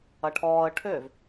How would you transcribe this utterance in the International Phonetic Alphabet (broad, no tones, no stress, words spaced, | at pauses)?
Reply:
ɐʈʰɔːə̯ ʈʰøv